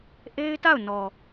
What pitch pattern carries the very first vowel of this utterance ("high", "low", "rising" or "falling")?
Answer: high